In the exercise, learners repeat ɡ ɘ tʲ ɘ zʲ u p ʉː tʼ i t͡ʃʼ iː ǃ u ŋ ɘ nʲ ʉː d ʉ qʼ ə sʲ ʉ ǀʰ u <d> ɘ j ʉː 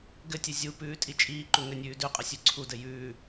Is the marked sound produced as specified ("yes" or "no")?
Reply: yes